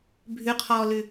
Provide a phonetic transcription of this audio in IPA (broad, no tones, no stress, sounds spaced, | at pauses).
bʱ ʉ qʰ ɔː l ʉ